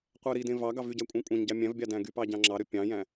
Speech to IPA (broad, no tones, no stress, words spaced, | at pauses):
qʷæɾidẽ vɑɡɑ vyɟæ kʷʼɑ̃kʷʼɑ̃ɲɟɑ mʲæ̃vbʲɑ dæ̃ɡypɑ ɟɑ̃ŋ͡ǁɑɾø pʲɑ̃jæ̃